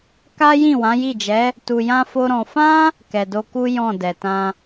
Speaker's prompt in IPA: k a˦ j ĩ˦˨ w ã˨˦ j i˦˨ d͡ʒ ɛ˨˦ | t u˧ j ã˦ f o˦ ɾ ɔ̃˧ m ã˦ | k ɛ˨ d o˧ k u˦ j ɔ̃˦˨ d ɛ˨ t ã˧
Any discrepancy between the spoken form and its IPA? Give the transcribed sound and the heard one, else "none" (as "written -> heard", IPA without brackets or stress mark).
m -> f